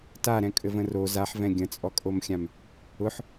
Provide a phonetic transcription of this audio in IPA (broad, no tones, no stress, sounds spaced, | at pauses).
t a ɾ ɛ̃ kʼ ɘ v ə̃ r o z a ħ v ɛ̃ ɡʲ ə̃ t͡sʼ ɔ kʼ o m xʲ ã m | ʊ ħ